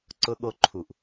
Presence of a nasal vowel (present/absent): absent